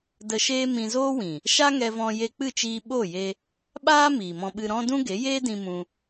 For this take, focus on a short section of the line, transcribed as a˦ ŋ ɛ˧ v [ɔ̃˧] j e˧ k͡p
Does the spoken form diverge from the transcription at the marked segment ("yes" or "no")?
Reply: no